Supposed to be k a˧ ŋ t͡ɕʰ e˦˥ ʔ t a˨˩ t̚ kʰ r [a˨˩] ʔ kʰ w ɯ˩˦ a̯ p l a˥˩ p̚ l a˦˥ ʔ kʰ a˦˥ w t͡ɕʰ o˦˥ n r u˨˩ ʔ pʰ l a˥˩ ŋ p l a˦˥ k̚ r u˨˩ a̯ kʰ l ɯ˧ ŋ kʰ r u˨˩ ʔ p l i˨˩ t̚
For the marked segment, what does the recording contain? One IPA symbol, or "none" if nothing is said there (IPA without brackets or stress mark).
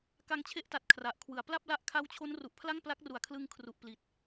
a˨˩